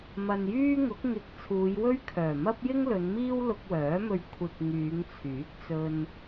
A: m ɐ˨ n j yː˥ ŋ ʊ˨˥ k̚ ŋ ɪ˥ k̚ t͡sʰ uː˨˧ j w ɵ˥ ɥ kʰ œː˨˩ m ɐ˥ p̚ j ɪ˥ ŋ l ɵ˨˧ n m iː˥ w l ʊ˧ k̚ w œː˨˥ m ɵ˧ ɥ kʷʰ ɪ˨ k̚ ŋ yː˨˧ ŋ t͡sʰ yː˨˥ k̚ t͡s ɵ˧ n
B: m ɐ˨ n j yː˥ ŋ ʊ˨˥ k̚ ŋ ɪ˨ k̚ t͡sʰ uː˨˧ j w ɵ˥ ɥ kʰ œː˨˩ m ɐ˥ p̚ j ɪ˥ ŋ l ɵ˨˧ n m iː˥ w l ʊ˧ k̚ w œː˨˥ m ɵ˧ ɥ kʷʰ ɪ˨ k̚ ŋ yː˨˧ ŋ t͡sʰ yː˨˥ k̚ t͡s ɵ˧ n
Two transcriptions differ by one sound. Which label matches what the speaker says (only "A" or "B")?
B